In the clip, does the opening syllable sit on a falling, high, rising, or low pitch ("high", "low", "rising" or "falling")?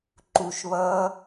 low